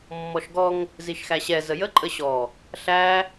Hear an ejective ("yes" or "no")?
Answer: yes